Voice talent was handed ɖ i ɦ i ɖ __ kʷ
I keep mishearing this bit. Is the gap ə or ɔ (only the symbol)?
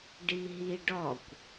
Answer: ɔ